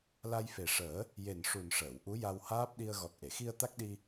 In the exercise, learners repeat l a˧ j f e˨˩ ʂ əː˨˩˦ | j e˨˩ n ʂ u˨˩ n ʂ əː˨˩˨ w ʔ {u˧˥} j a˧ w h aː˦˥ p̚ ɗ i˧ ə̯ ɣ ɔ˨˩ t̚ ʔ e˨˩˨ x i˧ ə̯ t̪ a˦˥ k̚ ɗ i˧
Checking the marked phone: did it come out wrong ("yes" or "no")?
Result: no